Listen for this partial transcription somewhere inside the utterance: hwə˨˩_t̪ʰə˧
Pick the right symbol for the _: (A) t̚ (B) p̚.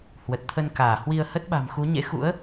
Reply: A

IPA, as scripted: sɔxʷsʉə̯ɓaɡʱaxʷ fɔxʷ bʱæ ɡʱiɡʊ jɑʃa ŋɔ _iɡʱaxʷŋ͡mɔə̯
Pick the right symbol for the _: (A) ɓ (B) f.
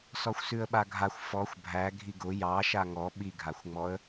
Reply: A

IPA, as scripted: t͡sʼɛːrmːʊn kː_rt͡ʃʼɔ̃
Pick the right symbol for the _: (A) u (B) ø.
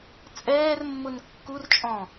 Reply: A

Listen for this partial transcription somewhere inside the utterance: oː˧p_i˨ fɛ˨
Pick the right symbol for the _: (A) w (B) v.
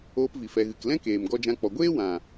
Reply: B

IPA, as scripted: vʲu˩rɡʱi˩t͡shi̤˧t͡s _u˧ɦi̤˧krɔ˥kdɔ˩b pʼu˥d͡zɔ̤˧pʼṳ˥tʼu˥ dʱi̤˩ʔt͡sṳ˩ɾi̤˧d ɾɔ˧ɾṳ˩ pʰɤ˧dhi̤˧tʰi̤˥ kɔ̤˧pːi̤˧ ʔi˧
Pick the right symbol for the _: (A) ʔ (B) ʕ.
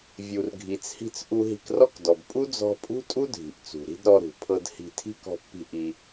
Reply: A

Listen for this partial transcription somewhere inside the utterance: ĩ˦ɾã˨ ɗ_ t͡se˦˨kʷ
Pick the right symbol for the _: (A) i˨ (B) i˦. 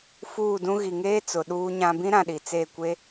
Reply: A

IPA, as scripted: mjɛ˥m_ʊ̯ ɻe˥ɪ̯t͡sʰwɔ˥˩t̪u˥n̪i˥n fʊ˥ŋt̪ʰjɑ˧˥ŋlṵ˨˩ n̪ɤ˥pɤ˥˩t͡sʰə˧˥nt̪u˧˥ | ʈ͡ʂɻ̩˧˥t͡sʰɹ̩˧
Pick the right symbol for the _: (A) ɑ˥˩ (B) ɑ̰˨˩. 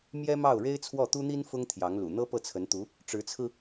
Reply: A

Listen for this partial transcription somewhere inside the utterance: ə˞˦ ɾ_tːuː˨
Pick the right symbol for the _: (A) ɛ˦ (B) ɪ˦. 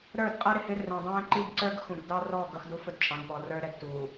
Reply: A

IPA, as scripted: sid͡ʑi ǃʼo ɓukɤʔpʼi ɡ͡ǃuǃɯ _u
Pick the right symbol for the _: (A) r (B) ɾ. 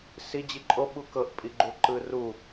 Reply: A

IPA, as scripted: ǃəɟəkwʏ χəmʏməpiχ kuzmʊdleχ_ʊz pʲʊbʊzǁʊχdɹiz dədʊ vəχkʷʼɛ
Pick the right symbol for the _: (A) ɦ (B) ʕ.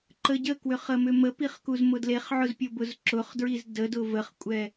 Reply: B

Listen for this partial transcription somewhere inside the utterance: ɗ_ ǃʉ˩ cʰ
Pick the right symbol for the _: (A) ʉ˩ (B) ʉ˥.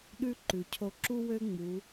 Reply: B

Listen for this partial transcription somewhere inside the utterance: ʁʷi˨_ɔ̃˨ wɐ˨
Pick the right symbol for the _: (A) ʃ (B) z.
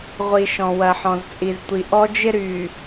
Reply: A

